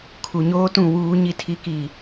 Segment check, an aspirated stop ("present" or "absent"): present